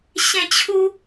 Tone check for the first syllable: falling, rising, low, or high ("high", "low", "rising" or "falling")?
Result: falling